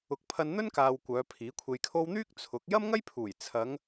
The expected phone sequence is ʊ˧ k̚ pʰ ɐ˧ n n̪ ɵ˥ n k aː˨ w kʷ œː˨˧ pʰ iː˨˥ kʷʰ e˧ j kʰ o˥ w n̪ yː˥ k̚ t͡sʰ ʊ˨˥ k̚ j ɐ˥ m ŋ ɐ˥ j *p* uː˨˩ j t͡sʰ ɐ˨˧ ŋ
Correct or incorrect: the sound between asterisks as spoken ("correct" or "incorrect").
incorrect